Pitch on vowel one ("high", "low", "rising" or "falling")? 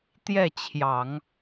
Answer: falling